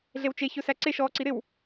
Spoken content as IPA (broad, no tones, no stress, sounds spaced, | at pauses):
ɮ e w t͡ʃ e ç ɵ s æ ǀ e ʃ ɔː ǀ i ɾ ɪ w